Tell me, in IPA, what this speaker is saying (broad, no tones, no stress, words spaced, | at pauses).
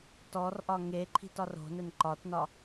tɔrʔɒ ŋeǃʰi̤t ɒro̤nɘn ǃɒtnɒ